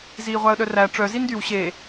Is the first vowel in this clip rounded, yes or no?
no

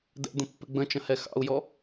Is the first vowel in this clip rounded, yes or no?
no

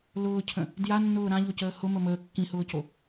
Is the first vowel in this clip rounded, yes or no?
yes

